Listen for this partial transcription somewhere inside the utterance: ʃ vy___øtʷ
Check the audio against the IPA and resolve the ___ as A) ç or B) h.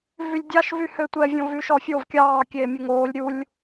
B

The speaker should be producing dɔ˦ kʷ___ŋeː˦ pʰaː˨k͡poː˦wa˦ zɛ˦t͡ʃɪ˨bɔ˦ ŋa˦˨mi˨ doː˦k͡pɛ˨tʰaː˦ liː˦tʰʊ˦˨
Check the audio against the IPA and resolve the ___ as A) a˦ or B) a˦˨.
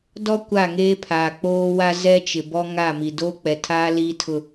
B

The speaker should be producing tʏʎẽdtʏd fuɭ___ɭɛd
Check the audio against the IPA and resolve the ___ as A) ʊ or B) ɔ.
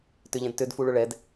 A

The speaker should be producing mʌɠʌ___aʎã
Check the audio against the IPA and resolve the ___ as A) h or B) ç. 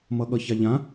B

